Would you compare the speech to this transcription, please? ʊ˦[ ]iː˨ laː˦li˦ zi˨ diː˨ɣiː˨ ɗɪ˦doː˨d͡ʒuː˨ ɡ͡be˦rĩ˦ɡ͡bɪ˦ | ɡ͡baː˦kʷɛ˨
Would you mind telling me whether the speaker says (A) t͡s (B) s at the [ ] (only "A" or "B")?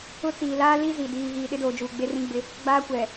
A